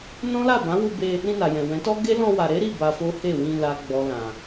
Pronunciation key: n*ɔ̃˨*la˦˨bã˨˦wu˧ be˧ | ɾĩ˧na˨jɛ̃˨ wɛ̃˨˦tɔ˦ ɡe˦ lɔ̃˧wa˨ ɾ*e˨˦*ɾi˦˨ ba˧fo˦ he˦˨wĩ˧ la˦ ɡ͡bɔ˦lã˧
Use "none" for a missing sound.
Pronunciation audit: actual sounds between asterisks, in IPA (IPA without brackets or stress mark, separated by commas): ɔ̃˦, e˨˦